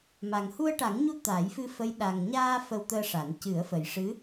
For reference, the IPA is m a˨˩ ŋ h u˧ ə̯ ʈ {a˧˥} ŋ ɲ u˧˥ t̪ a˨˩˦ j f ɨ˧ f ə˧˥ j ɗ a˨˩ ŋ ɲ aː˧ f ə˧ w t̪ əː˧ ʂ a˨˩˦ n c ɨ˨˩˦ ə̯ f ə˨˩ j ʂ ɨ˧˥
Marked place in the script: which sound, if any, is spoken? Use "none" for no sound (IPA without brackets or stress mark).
a˨˩˦